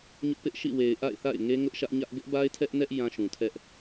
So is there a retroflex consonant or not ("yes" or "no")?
no